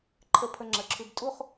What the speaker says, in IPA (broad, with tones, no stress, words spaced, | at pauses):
ǃʰə˧ pʰə˧ŋ͡ǁə˩˧˩ǁʰʉ˧b tʼu˥˧χ